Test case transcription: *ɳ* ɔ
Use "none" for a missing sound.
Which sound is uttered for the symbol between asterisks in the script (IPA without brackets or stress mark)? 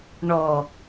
ɳ